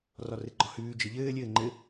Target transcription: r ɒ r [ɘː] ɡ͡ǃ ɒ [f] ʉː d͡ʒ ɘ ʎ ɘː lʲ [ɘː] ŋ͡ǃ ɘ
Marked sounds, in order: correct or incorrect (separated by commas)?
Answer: incorrect, incorrect, correct